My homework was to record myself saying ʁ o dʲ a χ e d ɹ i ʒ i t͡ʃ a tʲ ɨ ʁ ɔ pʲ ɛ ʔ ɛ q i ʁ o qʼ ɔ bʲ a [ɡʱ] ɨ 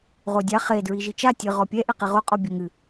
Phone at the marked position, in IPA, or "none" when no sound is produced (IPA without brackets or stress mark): ŋ